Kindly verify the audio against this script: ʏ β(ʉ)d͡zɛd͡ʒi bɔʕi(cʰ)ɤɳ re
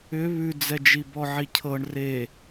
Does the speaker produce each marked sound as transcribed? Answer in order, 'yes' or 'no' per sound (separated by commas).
yes, yes